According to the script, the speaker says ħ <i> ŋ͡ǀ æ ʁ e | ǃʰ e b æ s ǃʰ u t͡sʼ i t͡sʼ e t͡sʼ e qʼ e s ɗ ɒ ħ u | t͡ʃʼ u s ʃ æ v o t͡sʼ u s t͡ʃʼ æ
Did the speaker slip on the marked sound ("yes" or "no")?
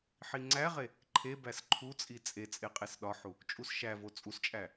no